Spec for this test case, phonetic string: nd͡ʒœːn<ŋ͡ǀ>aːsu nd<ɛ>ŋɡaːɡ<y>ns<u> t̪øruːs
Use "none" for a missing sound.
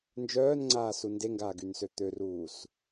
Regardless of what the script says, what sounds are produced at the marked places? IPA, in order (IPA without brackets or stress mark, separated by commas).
ŋ͡ǀ, e, y, ø